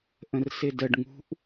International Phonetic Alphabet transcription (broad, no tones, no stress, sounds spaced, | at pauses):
ʔ ə̃ r s ɪ d ə ɖ ŋ ṳ ʔ